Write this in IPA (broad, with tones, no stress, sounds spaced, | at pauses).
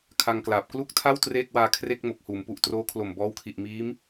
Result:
kʰ a˧ ŋ k l aː˨˩ p̚ k l u˥˩ k̚ tʰ a˥˩ w t r eː˥˩ k̚ w aː˧ kʰ r e˥˩ k̚ m o˨˩ k̚ h uː˩˦ m p u˨˩ ʔ t r oː˦˥ kʰ l o˨˩ m b ɔː˦˥ w kʰ i˨˩ ʔ m iː˦˥ m